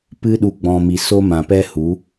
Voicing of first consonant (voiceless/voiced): voiceless